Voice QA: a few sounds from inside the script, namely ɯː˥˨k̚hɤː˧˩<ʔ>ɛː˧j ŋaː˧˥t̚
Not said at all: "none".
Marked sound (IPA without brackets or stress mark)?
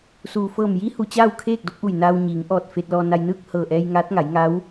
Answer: ʔ